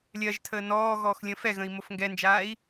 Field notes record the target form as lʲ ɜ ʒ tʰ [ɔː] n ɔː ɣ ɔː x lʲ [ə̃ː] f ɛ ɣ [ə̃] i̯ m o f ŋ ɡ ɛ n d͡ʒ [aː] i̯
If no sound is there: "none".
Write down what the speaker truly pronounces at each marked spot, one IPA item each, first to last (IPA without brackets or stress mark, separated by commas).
əː, ə̃ː, ə̃, aː